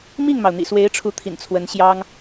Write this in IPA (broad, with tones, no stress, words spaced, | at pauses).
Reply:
mi˥˩ŋmɑ˩ʊ̯ n̪ḭ˨˩swe˧˥ɪ̯ʈ͡ʂʰu˧˥t̪ʰḭ˨˩n t͡sʰwə˧˥n ɕjɑ˥ŋ